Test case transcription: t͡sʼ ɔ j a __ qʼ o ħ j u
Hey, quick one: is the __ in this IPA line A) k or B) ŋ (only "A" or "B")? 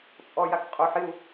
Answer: A